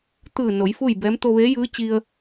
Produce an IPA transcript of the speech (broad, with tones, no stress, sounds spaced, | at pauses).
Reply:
t̪ ɯː˧˩ n o˩˧ j f u˥˨ j b ɛː˧˥ m t̪ o˧ ʋ eː˧˥ j ɯː˧˥ t͡ɕ i˧ ə̯